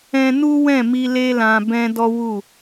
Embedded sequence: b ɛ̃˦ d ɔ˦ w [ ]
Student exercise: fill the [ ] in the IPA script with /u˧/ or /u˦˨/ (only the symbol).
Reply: u˦˨